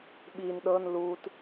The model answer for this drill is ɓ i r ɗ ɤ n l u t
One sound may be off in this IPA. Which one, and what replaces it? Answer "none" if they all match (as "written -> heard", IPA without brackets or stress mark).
r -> n